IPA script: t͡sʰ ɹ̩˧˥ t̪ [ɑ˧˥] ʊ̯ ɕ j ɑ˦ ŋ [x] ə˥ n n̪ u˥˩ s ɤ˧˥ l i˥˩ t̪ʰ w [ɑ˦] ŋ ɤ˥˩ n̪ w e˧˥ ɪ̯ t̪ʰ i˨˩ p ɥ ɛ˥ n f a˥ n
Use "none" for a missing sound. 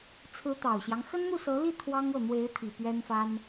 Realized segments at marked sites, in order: ɑ˨˩, x, ɑ˥

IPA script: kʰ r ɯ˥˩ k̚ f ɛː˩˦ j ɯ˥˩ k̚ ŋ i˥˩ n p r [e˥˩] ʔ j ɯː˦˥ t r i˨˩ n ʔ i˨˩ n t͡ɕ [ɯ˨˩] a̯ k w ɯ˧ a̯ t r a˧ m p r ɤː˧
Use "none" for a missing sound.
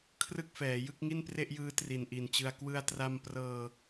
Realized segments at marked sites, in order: e˥˩, ɯ˧

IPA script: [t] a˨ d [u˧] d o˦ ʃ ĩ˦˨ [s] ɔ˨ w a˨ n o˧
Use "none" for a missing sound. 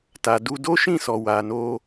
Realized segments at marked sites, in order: t, u˧, s

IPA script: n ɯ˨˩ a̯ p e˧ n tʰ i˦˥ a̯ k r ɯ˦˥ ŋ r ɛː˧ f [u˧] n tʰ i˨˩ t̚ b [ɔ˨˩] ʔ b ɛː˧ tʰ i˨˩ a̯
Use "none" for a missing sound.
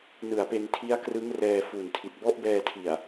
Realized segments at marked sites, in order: u˨˩, ɔ˦˥

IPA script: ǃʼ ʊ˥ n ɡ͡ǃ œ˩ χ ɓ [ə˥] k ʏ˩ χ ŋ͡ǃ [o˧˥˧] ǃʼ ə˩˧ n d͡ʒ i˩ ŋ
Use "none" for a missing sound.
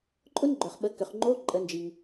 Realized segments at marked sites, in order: ə˩˧, o˧˥˧

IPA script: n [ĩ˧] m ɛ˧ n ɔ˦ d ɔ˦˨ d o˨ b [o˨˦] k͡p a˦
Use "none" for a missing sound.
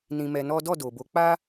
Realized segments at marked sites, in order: ĩ˧, o˨˦

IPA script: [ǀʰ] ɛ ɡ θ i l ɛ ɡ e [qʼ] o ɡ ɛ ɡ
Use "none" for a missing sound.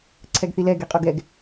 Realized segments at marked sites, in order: ǀʰ, qʼ

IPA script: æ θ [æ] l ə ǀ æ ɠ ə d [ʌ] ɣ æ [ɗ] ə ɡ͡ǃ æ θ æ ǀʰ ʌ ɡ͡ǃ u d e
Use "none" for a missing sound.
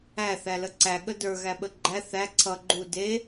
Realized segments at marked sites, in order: æ, ə˞, ɓ

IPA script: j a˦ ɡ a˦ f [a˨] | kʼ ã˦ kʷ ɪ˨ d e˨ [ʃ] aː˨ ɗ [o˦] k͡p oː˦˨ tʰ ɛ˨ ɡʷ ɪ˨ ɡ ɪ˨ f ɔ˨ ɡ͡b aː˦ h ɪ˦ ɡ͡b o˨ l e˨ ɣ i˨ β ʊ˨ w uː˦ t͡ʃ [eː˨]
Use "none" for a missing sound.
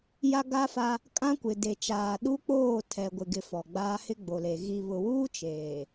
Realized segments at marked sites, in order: a˦, t͡ʃ, u˦, eː˨

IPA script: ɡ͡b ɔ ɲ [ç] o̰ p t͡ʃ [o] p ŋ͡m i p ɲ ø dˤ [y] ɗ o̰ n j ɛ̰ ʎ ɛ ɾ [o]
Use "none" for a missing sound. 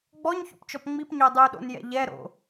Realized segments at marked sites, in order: ç, ɔ, y, o̰

